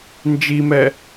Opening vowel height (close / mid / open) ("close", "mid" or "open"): close